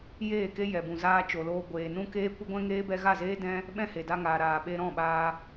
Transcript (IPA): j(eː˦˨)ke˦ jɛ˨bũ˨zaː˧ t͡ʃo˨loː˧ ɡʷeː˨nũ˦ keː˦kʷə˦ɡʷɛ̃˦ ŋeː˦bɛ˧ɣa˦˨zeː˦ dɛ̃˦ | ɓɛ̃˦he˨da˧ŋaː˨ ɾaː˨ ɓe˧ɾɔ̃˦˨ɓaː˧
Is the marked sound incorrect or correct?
correct